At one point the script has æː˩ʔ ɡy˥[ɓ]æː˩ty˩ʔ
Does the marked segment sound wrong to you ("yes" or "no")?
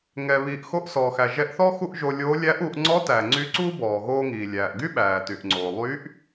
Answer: no